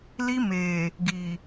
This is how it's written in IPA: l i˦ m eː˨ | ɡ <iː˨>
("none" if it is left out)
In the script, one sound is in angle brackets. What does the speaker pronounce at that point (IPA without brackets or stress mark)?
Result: iː˨